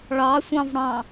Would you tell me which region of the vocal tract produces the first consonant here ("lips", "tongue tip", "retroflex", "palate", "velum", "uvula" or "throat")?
retroflex